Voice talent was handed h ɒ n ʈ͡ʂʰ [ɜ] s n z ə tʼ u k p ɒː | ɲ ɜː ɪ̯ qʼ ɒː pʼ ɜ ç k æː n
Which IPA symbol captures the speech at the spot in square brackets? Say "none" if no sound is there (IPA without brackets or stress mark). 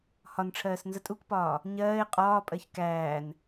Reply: ɜː